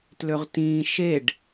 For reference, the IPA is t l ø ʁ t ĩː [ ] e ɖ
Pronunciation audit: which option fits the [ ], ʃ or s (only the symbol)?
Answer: ʃ